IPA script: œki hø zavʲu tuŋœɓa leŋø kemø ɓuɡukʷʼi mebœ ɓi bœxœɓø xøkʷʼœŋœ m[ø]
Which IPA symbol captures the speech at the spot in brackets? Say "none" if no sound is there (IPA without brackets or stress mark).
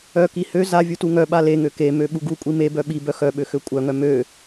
ø